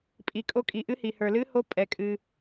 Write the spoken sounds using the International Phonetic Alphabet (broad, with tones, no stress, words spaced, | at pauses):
pʼi˩kʼo˧˥kʼi˩ ʔɨ˧˥hi˩ hə˞˩lɨ˧˥ho˧˥ pʼɛ˩kʼɨ˩